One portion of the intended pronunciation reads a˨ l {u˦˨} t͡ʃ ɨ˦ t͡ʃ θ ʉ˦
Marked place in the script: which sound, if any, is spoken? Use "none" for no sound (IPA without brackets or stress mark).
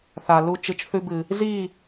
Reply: u˦˨